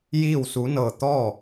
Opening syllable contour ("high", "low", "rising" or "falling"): falling